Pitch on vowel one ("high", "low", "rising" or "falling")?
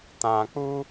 low